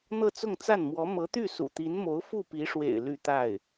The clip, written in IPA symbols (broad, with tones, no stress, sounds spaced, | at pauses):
n̪ ɤ˥˧ t͡s ʊ˥˧ ŋ t͡s a˥˩ n m w ɔ˧˥ m ɤ˧˥ t̪ y˥˩ s ṵ˨˩ t̪ i˧˥ n m o˧˥ ʊ̯ f u˥˩ p i˧˥ ʂ w ḛ˨˩ ɪ̯ l y˥˧ t̪ a˥˩ ɪ̯